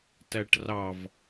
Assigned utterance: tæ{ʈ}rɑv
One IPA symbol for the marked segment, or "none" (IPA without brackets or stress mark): ʈ